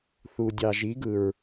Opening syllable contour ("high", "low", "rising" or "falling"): low